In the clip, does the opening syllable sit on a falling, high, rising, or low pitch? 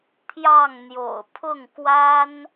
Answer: falling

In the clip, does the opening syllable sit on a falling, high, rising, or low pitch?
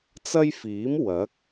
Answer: high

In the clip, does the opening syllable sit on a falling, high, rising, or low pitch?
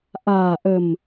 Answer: low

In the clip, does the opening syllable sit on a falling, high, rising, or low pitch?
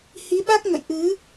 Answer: rising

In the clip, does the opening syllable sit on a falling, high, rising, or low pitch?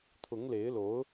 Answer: rising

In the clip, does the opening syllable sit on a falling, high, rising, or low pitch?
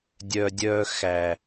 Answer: low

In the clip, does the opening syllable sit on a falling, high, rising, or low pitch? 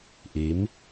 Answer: rising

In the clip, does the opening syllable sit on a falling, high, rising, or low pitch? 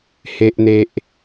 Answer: low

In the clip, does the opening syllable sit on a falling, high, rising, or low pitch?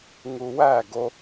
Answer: high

